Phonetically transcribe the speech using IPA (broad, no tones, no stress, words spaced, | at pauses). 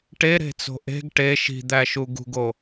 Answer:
ʈeɾe̤t͡so̤ ʔe̤ɡ ʈe ʃi̤d̪æʃu ɡṳɡo